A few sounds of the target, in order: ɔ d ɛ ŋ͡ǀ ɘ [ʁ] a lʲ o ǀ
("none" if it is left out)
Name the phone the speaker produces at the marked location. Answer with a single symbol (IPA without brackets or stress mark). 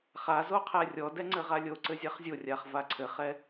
ʁ